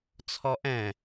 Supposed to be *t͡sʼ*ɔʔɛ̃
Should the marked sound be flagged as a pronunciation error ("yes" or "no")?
yes